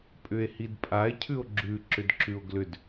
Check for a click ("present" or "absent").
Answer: present